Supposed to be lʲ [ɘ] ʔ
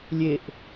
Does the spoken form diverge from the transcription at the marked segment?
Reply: yes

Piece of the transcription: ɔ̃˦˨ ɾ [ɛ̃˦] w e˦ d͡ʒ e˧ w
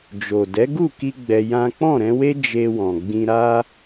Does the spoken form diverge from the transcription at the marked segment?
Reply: yes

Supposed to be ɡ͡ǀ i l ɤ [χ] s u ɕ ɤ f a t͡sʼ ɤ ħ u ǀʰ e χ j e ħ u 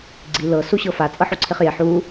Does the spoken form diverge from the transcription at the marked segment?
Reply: yes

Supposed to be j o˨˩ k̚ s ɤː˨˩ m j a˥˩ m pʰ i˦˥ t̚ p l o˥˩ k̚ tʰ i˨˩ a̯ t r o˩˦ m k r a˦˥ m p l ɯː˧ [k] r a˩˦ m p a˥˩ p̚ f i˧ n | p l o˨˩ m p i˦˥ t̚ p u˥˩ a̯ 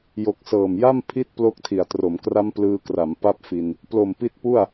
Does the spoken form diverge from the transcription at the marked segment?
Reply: no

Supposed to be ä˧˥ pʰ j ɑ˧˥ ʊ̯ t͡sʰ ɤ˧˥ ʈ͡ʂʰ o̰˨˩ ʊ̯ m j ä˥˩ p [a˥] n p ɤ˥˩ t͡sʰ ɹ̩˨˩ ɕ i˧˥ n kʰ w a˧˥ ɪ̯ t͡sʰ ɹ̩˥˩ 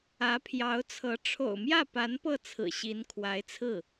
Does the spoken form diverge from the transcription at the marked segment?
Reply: yes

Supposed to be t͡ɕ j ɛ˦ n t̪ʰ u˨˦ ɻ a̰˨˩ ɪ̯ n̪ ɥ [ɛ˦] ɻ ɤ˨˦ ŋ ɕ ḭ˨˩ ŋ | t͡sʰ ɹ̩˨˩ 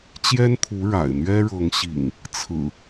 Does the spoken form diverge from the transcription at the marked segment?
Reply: no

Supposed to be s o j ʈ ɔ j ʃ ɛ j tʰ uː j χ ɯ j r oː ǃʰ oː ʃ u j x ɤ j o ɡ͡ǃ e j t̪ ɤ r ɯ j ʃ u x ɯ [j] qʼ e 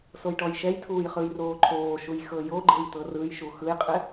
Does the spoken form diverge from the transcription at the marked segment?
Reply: no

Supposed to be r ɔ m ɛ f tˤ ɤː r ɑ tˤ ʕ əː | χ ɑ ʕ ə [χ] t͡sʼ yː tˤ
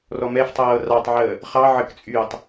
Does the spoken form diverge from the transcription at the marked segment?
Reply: yes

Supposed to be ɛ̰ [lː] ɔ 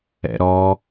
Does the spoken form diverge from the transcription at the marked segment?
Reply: yes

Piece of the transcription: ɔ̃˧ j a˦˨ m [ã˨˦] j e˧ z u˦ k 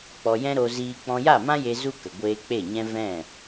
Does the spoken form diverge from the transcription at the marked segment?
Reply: yes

